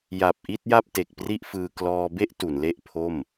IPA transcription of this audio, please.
j a˨˩ p̚ ʔ i˥˩ t̚ j a˥˩ p̚ t e˨˩ k̚ p r i˥˩ ʔ f ɯː˧ k l ɔː˧ b e˥˩ ʔ t u˩˦ n l e˥˩ ʔ pʰ o˥˩ m

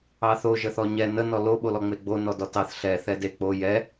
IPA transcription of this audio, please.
ɑ θ o ʒ ə θ ɔ ɲ ɛ n ə n ɔ l o ɓ o l ɔ ŋ͡m e ɡ͡b o n ɔ d ɔ t ɑ θ ɬ ɛ θ ɛ d e k͡p o j ɛ

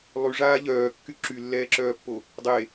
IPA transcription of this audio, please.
lˠ y ʐ aː ʎ œː kː y ǁ y lː ɛː ǁ œː pː o | dˤ e

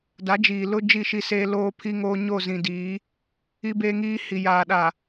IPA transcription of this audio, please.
d a˨˦ d͡ʒ iː˨ l ʊ˦ d͡ʒ i˦˨ ʃ i˦ s eː˦ l oː˦ pʰ iː˦ ŋ oː˦ ɲ o˦˨ z ĩ˨ d iː˨˦ | i˦ b e˦ ŋ iː˦ h i˨ j aː˨ ɗ a˨

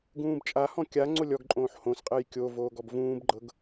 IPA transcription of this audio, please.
ɡ ũː b t͡ʃʼ a h ɔ̃ kʲ a ŋ͡ǀ o lʲ ɔ ɡ ǃʼ õː ħ h õ s qʼ e j kʲ o v oː ɡ ɔ b v ũː b ɡ͡ǃ ɤ ɡ

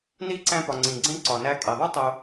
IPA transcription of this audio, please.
n i˥ ǀ æ̃˦ p ɒ˨ ŋ͡ǀ ĩ˩ ɡ͡ǀ ẽ˥ ǀ ɒ˩ n æ˦ kʼ e˩ ðˤ u˥ tˤ o˨

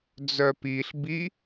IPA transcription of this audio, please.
d͡z œ p i ɬ b i

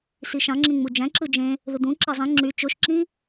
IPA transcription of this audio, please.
s i ʃ ɑ̃ ŋ͡ǁ ĩ ŋ͡m u d͡ʒ æ̃ ǁ ɯ d͡ʒ ẽ | ð ɯ d̪ ũ ǁ ɑ zˤ ĩ ŋ͡ǁ y t͡ʃ o ʃ ǁ ĩ

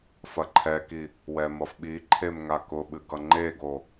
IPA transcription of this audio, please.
f ɐ ǃʰ ɛ k i | w ɛ m ʌ f ɓ i ǃʰ e m ŋ a k ʊ ɓ ɨ ɡ ʌ ŋ͡ǃ e ɡ o

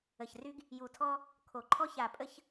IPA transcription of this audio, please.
ə˨ ç r y˦ ɡ | j u˨ tʰ ɔ˦ | kʰ o˨ ǃʰ ɔ˦ ç a˨ pʼ ə˦ ç

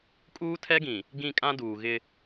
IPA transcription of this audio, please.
kʼ uː˦ tʰ ɛ˦ ɡ ĩ˨ | ɡ ĩ˦˨ kʼ ã˦ d uː˨ ɣ ɪ˦

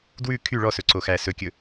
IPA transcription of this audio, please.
d w ʉ kʰ y ɭ ɔ s ɵ ǀ o x æ s ɵ kʲ ɵ

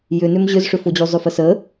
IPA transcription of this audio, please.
j ʏ n ʏ m ʑ ʏ z ʂ ʏ f o d͡ʑ u zˤ ʏ f ə s ə

